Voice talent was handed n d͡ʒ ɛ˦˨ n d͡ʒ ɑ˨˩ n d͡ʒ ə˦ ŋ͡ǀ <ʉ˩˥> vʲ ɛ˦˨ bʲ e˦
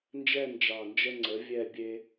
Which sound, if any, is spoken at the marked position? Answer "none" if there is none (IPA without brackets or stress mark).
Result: ə˩˥